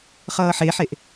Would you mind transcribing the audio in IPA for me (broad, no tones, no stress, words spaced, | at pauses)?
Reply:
χʌːħeħeʔ